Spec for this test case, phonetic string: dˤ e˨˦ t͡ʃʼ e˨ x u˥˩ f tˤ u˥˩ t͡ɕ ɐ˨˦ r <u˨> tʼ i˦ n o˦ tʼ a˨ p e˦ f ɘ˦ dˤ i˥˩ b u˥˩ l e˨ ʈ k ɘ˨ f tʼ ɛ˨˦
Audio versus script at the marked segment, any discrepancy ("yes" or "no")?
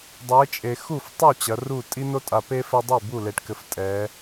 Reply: yes